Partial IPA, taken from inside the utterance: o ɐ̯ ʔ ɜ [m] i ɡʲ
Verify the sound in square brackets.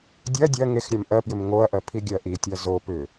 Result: incorrect: pʰ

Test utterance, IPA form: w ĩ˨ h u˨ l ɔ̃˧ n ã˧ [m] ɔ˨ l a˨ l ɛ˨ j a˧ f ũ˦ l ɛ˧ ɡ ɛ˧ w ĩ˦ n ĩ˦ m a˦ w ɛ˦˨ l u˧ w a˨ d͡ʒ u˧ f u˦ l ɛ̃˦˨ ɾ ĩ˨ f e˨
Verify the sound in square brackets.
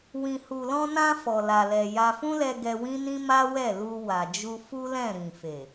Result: incorrect: f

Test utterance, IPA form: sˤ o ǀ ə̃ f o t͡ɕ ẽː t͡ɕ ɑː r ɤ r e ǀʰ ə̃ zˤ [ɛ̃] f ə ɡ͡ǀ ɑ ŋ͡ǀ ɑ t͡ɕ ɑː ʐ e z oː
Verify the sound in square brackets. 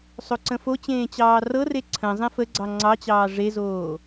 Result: incorrect: ẽ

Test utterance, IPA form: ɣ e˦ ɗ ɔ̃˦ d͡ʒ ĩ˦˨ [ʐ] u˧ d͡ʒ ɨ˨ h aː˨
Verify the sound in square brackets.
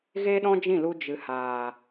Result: incorrect: l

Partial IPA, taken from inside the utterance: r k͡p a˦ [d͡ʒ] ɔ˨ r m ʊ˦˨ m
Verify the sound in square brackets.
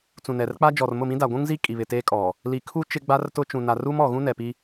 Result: correct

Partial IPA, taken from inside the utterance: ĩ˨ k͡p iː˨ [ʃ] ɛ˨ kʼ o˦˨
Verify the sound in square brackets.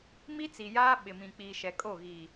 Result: correct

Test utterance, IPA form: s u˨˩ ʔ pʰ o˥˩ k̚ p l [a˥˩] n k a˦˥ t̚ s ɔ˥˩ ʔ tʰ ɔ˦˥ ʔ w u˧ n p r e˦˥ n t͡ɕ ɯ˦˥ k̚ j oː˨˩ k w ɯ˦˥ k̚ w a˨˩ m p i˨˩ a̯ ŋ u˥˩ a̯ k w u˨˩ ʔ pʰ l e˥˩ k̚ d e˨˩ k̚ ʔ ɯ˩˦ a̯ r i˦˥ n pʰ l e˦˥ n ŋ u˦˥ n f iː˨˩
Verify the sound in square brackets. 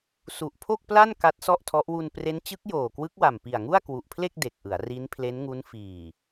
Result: correct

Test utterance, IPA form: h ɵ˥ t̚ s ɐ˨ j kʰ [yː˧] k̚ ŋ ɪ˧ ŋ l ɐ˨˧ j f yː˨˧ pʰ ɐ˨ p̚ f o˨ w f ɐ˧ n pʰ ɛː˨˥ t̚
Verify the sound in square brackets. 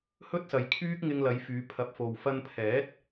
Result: incorrect: yː˥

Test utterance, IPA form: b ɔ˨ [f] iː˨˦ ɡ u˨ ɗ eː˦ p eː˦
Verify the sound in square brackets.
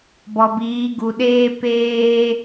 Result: incorrect: b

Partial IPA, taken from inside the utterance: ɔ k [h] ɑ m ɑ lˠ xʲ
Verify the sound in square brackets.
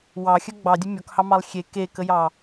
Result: correct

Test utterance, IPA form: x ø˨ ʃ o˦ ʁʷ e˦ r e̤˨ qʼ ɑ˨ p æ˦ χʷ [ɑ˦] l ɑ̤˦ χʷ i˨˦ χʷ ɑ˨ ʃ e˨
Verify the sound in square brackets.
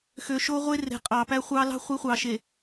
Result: correct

